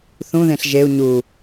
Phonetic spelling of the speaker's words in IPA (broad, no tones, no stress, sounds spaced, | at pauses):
θ ũ ð ẽ ɬ ʒ e u̯ ɲ u